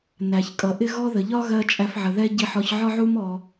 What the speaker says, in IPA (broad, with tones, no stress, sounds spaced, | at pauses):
n æ˩ ç kʼ ʌ˩ ʔ ɪ˥ ɣ ɔ˥ ð ə˩ ʎ ɒ˥ ɣ ɜ˧ t͡ʃʼ æ˧ f ʕ ə˩ ð ɛ˥ ɟ i˧ ħ ɔ˧ ç ʕ ɒ˥ ʕ u˥ m ɔ˧